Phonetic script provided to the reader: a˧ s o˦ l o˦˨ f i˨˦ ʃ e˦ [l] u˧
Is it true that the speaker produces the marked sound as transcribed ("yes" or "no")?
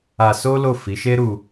no